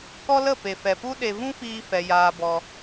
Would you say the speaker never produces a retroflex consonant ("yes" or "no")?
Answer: yes